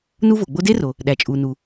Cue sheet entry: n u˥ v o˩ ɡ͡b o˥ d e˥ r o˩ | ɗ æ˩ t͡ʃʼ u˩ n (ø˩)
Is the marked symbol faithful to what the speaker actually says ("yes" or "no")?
no